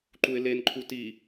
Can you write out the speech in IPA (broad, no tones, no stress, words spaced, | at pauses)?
ǃuɪ̯lenǃʰu ti